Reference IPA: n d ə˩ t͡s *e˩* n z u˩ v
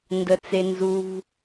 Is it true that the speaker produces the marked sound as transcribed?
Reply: yes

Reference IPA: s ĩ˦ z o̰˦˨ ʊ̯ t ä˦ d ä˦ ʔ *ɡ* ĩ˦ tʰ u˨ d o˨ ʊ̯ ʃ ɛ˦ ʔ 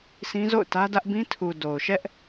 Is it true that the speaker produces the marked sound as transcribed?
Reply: no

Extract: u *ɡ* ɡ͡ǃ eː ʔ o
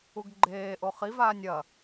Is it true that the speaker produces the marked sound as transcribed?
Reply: yes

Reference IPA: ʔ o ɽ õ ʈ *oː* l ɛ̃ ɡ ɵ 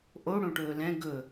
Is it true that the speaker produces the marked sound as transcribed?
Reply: no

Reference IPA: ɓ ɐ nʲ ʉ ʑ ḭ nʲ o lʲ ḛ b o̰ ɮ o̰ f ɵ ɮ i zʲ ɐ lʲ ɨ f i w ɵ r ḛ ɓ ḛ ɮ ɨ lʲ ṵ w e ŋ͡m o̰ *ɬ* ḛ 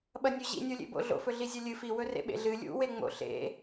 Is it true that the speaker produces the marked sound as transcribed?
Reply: yes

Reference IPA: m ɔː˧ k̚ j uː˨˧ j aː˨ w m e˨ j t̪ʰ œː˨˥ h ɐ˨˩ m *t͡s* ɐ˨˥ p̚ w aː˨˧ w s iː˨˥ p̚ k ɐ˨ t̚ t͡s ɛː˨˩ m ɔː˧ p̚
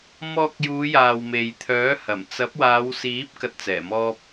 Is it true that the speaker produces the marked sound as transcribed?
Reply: yes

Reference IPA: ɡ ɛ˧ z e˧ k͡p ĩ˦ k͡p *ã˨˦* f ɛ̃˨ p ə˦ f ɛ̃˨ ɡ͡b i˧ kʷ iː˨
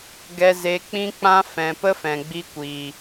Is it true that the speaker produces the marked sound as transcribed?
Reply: no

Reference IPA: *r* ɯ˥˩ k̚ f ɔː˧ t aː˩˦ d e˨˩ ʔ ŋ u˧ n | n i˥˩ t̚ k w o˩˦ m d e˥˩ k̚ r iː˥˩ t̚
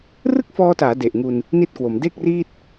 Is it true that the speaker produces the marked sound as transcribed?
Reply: yes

